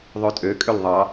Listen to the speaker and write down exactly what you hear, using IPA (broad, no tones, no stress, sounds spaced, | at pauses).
ðˤ ø tʼ ø kʼ ø l ðˤ ɑ